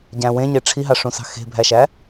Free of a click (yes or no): yes